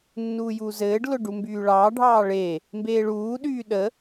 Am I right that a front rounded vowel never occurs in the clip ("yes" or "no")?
no